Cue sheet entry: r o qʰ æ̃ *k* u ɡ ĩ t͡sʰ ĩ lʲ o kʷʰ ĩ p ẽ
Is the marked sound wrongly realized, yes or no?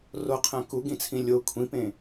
no